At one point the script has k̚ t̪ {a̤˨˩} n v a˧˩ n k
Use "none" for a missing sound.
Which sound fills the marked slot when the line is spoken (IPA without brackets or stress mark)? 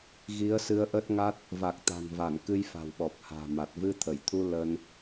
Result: a̤˨˩